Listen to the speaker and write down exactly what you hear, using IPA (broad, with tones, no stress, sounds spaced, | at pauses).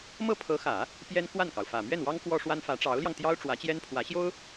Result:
m ɤ˥˩ pʰ ɤ˧˥ x ä˨˩˦ | p j ɛ˥ n k w a˥˩ n k ɑ˩ ʊ̯ f ä˨˩ m ɥ ɛ˥˩ n w ɑ˥ ŋ k w ɔ˥ ʂ w a˥ n f ä˧˥ ʈ͡ʂ ɑ˧˥ ʊ̯ l j ɑ˧ ŋ t̪ j ɑ˥ ʊ̯ ʈ͡ʂ w ä˧˥ t͡ɕ j ɛ˥ n pʰ w ä˧˥ ɕ j o˥ ʊ̯